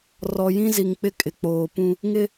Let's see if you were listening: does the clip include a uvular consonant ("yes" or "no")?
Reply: no